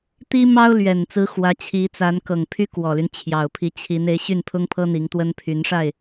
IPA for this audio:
t̪i˥mɑ˥ʊ̯lɥɛ˨˩nt͡sɹ̩˧˥ xwä˧˥t͡ɕʰi˧˥t͡sa˧˥n kɤ˨˩ŋpʰy˥kwɔ˨˩ly˦n t͡ɕʰjɑ˨˩ʊ̯pʰi˧˥ t͡ɕʰi˧˥n e˧˥ɪ̯ɕy˥˩npʰʊ˥ŋpʰɤ˥ n̪i˧˥ŋt̪wə˥npʰy˧˥nʂa˥˩ɪ̯

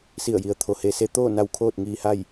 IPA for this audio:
si˧˩ə̯ji˩ə̯t̪ʰo˩ he˩ se˧t̪oː˥˨na˧w kʰoː˥˨t̚ŋiː˧ha˥˨j

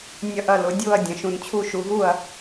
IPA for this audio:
nʲɐ˥˩ʔɐ˥˩ lʊ˩˧dʲʊː˥˩ɐ̯ dʲɐ̃˩˧ʃũ˩˧nt͡ɕʰu˥˩ʃu˩˧ ɦu˥˩ɐ̯

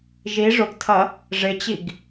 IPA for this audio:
ʒi ʐʊɡtʰɐ | ʐɪt͡ɕiɡ

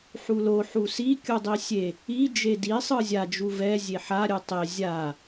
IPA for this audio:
ħulo ħusi kʲudˤisʲe | i d͡ʒedi sˤɯzʲa d͡ʒuvɛ zʲeħa ɾʲɯtˤe zʲa

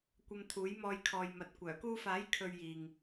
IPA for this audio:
kʷɐ˧mt̪ʰuː˨˥jmɔː˧j kʰɔː˨jmɐ˨t̚kʷœː˨˩ kuː˧faː˨˥j kʰɵ˧ɥjiː˨ŋ

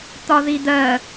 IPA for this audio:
t̪ɒðid̪ɜ

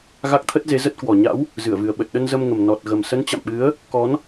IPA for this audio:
ɣa˦˥k̚t̪ʰə˦˥t̚ze˨˦ zə˦˥t̚kwɔ˨˩ ɲa̰˧˥w | zɨ˧˩ə̯vɨ˨˩ə̯ ɓə˨˩t̚ɗə˧n zə˧mŋə˨˩m nɔ˨˩t̚ɣə˨˩m sə˨˦nt͡ɕa̰˧˨mɓɨ˨˦ə̯ | kɔ˨˦n

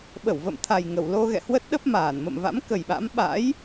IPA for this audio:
ɓə˧˩wvə̰˧˨m t̪ʰa˨˩jŋə˧˩wlo˧ ɣɛ̰˧˨hwə˦˥t̚ɗə˦˥p̚maː˧˩n mə̰˧˨mva̰˧˥mkə˨˩jɓa̰˧˥m ɓa̰˧˥j

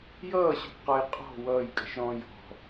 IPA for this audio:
jʌːɕʊkqɔj qʼɔ̤ wʌːjkʼə̤ʃɾɔ̃ː jɔ̤

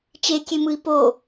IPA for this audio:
t͡ʃekʲemɯi̯ po

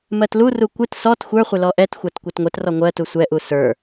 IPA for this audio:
mɜtluru kʷɪt sɔt xʷə˞χʷɪ lɔʔɛtxʷat kʷatŋʷɛtrɔ ŋʷɜtu sʷɛʔu sə˞

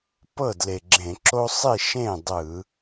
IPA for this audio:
pɤ˥˩dle˨˩ɡ͡ǁẽ˧˩˧ ǁo˦sˤi˥˩ ʃẽ˥˩ dˤɯ˧˩˧

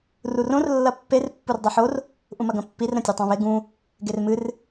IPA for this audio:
rurõr lːɐpːer pːurdˤiħor | ʔũmɐɡɐ̃pːir ɾɐ̃tʲɨtˤãβe ɡũ | ɡermɨr

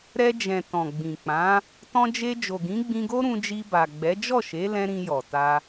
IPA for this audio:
ɾɛ˧d͡ʒɛ̃˨ tɔ̃˨ɡ͡bĩ˨k͡pã˨˦ | tɔ̃˧d͡ʒe˧ d͡ʒo˨ɡĩ˨˦ɡ͡bĩ˧ɡo˦ ɾũ˧d͡ʒi˧ba˨ɡ͡bɛ˨˦ d͡ʒɔ˦˨ʃe˨˦lɛ̃˧ ɾĩ˧jɔ˨ta˧

